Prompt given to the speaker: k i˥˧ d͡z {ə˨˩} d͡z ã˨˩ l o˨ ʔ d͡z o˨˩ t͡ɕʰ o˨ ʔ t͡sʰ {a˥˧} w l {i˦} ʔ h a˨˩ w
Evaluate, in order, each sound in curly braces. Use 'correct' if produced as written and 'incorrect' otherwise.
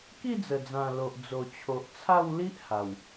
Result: correct, correct, correct

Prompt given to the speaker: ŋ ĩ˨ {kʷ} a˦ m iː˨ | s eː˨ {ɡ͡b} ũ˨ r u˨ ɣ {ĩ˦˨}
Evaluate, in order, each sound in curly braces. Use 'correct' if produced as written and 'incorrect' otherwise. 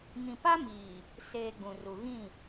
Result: incorrect: p, correct, correct

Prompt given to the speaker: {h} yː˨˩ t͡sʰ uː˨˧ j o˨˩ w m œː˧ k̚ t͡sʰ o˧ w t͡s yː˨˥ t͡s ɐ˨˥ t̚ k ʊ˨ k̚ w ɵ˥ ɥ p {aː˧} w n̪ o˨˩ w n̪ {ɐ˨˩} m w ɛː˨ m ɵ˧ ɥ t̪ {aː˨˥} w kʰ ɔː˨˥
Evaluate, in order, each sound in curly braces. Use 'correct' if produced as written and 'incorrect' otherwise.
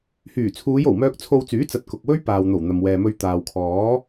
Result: correct, incorrect: aː˨, incorrect: ɐ˨, incorrect: aː˨

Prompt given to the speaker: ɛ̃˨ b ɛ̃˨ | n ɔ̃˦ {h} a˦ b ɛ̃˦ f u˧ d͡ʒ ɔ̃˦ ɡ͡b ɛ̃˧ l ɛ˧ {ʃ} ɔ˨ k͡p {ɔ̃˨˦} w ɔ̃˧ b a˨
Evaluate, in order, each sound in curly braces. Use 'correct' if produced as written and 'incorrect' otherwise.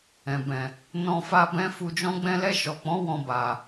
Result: incorrect: f, correct, correct

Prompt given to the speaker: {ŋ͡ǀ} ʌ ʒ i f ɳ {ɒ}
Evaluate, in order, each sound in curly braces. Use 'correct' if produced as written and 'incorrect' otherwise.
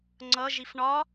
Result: correct, correct

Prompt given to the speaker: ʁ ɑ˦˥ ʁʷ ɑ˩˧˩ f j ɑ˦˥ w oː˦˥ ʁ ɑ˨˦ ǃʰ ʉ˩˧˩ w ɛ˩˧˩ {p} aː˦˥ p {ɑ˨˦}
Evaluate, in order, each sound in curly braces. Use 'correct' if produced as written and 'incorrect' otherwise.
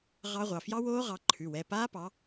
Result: correct, correct

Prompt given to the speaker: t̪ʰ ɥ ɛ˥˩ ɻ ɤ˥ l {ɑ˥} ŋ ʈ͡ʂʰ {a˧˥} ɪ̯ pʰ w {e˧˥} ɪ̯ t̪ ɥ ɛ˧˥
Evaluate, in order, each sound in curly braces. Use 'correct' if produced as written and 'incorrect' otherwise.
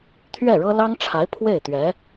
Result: correct, correct, incorrect: e˥˩

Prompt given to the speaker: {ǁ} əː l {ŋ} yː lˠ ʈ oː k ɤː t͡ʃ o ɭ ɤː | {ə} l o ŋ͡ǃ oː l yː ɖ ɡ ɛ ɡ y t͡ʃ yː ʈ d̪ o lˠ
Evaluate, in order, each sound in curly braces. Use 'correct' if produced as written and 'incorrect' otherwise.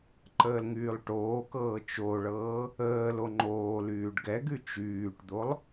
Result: incorrect: ǃ, correct, incorrect: əː

